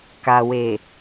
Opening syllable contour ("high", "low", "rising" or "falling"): low